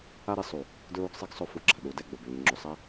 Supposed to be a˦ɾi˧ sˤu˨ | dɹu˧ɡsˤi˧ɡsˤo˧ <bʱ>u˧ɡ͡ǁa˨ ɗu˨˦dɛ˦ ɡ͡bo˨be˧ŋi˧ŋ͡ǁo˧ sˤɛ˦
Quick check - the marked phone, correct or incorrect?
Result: incorrect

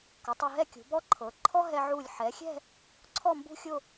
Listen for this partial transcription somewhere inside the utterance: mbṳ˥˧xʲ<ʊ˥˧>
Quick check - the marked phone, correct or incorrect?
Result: correct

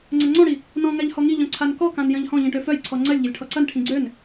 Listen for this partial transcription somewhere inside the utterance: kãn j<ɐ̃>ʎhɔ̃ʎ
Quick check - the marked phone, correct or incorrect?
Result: correct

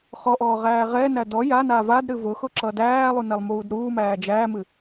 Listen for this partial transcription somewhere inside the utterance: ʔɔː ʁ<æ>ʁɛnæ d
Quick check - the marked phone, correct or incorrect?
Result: incorrect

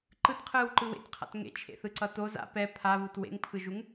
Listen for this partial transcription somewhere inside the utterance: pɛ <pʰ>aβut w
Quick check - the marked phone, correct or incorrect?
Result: correct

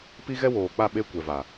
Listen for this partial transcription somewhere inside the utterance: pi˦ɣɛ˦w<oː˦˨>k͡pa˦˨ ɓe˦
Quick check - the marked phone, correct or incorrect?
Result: incorrect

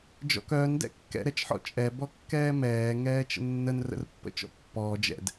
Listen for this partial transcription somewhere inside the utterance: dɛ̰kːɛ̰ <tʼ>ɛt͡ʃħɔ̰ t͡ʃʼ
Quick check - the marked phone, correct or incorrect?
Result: incorrect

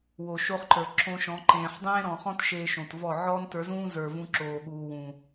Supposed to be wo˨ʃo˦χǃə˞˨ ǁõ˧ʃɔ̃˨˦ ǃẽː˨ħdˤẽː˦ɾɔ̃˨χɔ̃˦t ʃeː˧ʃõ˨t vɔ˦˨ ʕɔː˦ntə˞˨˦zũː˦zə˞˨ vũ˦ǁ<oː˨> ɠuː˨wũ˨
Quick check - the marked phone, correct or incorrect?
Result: correct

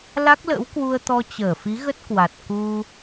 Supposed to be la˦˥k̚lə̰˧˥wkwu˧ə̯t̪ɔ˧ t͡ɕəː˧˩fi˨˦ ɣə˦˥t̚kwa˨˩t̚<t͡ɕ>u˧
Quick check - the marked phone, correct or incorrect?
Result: incorrect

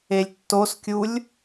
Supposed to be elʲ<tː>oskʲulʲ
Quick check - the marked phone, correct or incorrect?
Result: correct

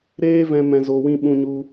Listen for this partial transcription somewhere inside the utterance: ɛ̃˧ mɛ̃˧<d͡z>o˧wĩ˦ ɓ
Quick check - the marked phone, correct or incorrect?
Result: incorrect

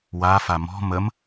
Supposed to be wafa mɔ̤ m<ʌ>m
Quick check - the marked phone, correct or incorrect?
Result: incorrect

